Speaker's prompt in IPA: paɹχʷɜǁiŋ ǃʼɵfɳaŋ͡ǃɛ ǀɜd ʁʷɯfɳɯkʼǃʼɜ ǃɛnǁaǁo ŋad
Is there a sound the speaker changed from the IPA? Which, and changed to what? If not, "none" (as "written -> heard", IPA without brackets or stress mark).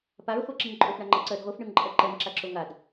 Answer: kʼ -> ŋ